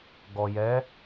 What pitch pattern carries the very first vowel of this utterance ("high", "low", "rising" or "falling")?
low